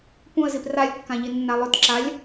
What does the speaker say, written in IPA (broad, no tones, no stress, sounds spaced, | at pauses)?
p ũ ə̯ z i p r a lʲ kː ã ʎ i nː a lˠ ɵ t ǁ a lʲ